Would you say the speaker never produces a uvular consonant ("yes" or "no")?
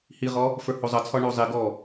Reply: no